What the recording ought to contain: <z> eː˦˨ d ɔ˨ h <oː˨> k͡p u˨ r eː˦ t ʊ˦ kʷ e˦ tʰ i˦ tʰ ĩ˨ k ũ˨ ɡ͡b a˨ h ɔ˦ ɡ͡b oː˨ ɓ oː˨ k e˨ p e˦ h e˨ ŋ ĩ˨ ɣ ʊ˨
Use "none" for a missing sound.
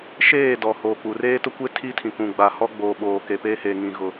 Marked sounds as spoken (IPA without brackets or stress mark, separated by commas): ʃ, oː˨